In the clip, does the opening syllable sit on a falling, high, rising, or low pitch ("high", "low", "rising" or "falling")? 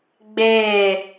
falling